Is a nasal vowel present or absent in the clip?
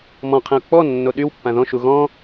present